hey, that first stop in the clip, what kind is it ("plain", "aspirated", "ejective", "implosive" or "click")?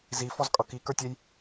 ejective